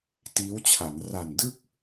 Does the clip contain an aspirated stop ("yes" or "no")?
yes